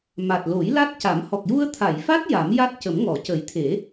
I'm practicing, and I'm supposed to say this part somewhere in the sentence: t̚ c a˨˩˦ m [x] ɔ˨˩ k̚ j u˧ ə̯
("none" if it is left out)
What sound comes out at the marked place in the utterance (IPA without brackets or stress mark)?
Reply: h